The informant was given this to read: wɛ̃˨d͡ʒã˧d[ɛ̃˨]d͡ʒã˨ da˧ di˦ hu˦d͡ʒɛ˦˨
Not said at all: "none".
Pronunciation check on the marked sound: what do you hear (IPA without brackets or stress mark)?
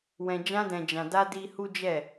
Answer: ɛ̃˨